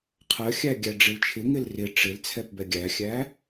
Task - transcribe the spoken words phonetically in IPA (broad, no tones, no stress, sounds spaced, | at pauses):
qʰ ɜ xʲ æ ɡʲ æ ɖ͡ʐ ɪ l t͡ʃʰ ɪ ŋ ɪ l r ɪ ʈ͡ʂ ɪ l t͡sʰ ɛ p b ɛ ɡʲ æ xʲ æ